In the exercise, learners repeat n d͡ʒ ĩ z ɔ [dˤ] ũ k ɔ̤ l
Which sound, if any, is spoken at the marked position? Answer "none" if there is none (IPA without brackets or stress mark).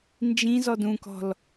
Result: d